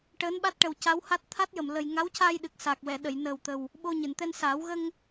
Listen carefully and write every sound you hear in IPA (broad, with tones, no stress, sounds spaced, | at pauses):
ʈ əː˧˥ n ɓ a˦˥ t̚ ʈ ə˨˩ w c a˧˥ w h a˦˥ t̚ t̪ʰ a˦˥ t̚ j ə˨˩ m l ə˨˩ j ŋ a˧˥ w c a˧ j ɗ ɨ˨˩ k̚ s a˨˩ k̚ w ɛ˨˩˨ ɗ ə˨˩˨ j n əː˨˩ w t̪ ə˨˩ w | ɓ o˧ ɲ ɨ˨˩˨ n t̪ ɛ˧ n s aː˨˩˦ w ɣ ə˧ ŋ